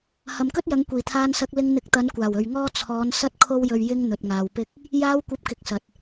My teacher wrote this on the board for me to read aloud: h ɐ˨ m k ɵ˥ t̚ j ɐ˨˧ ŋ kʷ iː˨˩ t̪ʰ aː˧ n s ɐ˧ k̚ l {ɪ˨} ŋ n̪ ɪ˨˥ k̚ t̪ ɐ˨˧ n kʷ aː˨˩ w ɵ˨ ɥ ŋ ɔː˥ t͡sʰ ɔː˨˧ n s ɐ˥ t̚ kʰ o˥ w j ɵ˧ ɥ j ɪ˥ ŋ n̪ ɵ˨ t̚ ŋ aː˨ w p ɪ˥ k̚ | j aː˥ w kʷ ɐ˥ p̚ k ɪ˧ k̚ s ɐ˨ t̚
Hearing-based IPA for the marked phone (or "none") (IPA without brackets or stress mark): ɪ˧